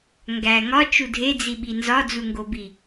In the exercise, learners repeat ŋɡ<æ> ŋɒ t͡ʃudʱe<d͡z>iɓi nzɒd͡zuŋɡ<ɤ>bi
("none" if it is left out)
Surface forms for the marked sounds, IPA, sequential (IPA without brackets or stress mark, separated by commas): æ, d͡z, o